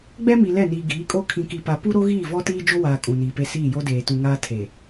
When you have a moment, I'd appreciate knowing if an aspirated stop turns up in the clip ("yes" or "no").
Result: yes